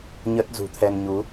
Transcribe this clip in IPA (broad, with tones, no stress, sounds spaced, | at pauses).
ɲ ə˦˥ t̚ z ṳ˨˩ t̪ʰ ɛ˧ n ɲ u˨˦